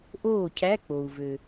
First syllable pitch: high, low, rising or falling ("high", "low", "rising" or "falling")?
falling